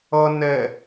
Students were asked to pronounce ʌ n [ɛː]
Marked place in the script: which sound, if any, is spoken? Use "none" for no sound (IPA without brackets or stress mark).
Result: ɛ